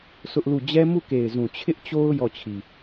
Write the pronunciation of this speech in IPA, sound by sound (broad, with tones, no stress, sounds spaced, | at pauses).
sʰ ʊ˦ ʔ l u˦˨ d͡ʑ ɛ˦ m u˦˨ k e˨ ɪ̯ z ũ˨ t͡ɕʰ ɪ˦ ʔ t͡ɕ o˦ ʊ̯ j ɔ˦˨ t͡ɕʰ i˨